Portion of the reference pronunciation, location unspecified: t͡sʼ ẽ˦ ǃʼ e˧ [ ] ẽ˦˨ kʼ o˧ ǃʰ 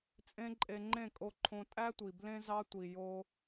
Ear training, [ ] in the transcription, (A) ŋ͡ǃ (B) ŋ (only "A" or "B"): A